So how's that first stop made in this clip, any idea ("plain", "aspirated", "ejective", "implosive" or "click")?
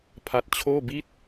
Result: aspirated